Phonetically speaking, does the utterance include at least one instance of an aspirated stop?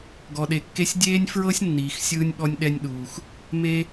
no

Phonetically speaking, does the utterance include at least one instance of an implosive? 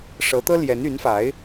no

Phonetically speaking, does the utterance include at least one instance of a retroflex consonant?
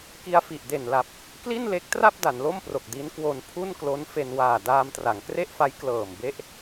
no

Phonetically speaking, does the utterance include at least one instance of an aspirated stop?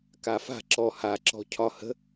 yes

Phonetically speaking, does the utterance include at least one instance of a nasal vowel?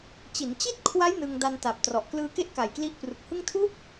no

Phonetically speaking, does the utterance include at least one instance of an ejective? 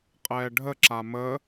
yes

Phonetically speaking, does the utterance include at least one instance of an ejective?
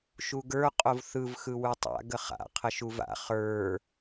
yes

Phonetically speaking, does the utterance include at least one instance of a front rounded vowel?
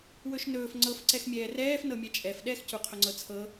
no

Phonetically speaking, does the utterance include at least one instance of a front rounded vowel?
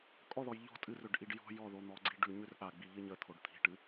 yes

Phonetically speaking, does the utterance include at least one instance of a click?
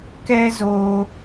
no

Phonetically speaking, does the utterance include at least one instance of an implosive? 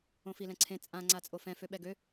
yes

